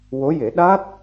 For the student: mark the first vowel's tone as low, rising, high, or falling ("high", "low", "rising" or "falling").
rising